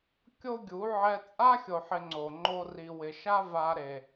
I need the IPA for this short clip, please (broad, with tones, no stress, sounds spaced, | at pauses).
kʲ o˦ ɡʲ u˨˦ ʕ ɛ˧ t͡sʼ a˦ xʲ o˨ ħ ɪ˧ ŋ͡ǀ o˨ ŋ͡ǃ o˧ r i˨ w ɪ˨ ʃ a˦ v a˧ ɾ e˨